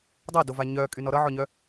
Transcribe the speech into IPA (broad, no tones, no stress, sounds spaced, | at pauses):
dˤ ʌ d o v a ɲ œ kʼ y n ɔ ɾ ʌ ʕ ɔ ɲ œ